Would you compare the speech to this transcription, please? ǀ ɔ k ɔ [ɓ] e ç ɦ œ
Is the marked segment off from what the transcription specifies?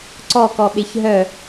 no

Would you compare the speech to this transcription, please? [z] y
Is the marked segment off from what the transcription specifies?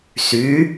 yes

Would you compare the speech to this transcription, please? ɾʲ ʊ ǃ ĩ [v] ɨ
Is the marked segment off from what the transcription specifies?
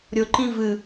no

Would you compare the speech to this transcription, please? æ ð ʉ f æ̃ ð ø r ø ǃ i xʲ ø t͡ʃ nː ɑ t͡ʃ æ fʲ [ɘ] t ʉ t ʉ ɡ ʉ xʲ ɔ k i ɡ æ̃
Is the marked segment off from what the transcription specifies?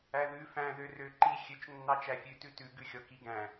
yes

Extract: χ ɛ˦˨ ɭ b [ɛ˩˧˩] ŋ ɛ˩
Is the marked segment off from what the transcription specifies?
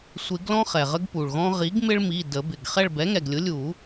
yes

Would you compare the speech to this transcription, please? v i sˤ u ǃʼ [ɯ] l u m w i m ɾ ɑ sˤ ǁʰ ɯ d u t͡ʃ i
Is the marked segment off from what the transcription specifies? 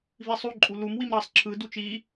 yes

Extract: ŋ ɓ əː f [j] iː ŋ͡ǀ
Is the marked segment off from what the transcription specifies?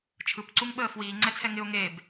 yes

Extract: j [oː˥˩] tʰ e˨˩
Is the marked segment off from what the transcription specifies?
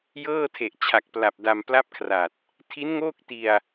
yes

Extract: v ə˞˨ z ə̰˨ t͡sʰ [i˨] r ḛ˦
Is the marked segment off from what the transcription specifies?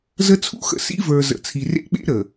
no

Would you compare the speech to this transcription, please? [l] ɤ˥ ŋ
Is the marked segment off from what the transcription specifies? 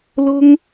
no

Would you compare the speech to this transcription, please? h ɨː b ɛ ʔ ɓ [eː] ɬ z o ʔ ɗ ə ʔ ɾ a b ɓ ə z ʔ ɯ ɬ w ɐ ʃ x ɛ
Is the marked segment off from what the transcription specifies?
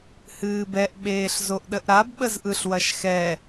no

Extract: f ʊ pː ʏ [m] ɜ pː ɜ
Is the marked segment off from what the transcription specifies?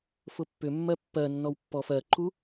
yes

